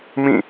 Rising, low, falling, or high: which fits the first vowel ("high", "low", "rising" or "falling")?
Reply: falling